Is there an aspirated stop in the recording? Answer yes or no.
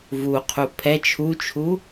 yes